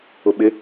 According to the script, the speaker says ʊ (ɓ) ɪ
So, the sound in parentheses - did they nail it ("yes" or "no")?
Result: yes